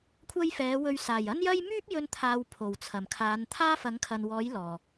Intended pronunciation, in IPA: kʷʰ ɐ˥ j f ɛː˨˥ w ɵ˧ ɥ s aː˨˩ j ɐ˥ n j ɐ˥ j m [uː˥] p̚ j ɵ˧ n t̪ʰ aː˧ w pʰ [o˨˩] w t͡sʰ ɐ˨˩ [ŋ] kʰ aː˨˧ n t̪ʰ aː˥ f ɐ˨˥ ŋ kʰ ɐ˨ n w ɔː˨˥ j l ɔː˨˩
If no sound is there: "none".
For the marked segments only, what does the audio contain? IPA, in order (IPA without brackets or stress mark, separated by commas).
yː˥, o˨˩, m